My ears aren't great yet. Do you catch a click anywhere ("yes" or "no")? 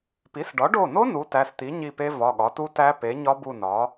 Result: no